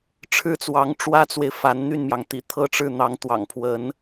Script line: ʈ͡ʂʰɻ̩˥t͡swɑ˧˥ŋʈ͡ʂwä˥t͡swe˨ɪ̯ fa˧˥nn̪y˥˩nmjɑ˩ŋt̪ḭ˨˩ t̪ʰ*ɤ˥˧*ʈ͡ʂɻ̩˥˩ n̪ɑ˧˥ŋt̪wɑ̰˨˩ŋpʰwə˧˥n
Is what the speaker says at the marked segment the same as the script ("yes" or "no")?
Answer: yes